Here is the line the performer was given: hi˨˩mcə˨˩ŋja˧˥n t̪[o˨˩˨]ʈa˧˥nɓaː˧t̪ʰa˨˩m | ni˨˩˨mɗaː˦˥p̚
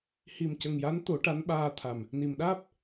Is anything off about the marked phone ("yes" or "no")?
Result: yes